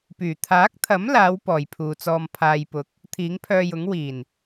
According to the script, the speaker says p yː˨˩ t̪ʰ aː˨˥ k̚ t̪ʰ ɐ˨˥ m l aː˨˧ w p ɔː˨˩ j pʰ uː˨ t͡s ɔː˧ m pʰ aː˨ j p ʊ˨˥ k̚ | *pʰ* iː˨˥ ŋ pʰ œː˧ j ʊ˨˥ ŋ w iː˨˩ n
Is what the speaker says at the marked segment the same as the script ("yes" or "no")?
no